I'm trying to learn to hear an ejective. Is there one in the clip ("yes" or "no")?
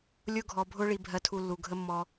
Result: no